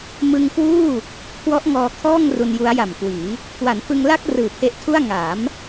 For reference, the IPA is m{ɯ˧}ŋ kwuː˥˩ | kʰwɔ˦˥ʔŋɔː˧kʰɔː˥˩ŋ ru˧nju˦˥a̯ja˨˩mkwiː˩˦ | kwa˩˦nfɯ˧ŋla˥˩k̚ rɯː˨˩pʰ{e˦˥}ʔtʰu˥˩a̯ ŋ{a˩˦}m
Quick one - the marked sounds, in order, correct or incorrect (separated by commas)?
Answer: correct, correct, correct